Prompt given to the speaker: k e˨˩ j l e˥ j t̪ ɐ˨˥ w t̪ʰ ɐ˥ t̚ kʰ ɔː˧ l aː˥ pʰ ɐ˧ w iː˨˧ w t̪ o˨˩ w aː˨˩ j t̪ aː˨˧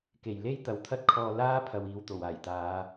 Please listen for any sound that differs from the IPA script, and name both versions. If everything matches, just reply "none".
none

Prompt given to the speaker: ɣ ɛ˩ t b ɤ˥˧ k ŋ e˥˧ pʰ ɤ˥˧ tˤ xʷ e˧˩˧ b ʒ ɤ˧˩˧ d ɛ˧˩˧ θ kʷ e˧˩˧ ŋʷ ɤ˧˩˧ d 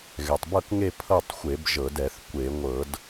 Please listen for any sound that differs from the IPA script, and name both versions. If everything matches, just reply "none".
t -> tˤ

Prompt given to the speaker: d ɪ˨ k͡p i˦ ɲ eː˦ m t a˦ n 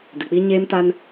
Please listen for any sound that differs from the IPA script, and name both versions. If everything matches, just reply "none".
none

